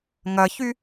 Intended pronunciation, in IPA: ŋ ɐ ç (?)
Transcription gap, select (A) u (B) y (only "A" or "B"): B